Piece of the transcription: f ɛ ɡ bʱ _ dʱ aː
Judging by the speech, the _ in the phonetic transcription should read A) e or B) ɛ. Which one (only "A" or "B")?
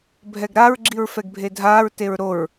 A